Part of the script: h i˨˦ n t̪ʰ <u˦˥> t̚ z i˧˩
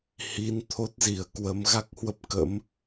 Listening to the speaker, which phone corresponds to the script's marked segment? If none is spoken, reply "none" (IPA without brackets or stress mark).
o˦˥